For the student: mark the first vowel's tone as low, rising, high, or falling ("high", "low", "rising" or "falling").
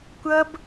high